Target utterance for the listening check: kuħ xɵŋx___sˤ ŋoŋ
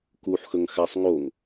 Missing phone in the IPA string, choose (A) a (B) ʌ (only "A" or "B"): A